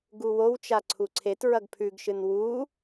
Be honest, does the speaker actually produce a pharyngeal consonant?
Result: no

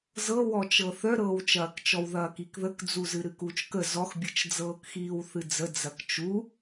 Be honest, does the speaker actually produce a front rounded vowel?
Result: yes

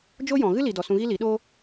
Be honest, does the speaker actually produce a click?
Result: no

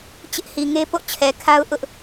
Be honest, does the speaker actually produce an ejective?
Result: no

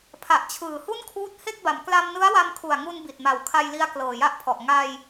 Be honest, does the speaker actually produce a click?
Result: no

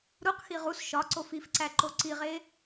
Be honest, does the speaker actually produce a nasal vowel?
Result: no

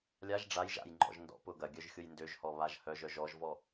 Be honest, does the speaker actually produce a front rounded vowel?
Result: yes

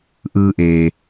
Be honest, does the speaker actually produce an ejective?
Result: no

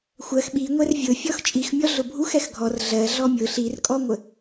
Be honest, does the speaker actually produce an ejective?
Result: yes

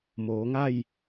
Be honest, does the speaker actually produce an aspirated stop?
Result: no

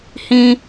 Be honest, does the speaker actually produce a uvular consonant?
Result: no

